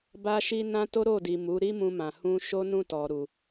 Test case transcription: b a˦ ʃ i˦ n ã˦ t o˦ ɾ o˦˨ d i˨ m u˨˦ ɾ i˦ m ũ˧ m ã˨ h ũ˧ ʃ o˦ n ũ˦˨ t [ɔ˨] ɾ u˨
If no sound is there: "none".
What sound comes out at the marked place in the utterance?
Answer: ɔ˨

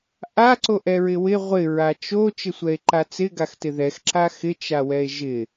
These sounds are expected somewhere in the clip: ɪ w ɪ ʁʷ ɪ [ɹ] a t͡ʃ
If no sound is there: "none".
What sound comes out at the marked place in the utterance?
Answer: ɹ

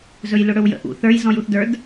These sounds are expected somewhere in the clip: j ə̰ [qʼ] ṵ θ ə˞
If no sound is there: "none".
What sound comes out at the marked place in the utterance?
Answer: ʔ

